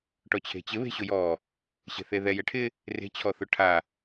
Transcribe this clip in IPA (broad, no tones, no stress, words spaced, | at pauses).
ʈɔt͡ɕʰe̤t͡ɕɪ βe̤ɕʊjɔ | ɕe̤θeðɛ jɛʈʰɪ | re̤ t͡ɕʰɔθʊʈʰa